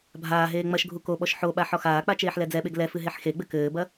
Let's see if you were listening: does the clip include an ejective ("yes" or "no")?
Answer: no